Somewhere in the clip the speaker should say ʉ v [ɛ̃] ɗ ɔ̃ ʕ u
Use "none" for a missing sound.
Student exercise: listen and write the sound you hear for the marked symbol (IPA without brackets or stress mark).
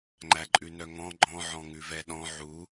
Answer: ɛ